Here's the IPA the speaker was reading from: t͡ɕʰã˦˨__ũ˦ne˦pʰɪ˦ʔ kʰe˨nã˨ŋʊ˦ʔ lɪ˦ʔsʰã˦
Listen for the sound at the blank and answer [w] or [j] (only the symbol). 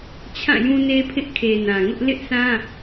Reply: j